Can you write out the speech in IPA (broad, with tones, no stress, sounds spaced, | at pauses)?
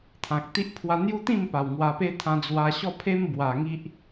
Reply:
t̪ʰ ã˨ k̚ t̪ i˦ ʔ pʰ w a˧ n̪ j u˦ t̪ ĩ˥˧ m p a˨˩ w ŋ w a˧ p e˦ t̪ʰ ã˧ d͡z w a˧ ɕ ɔ˥˧ pʰ e˦ m b w a˨˩ ŋ i˦ ʔ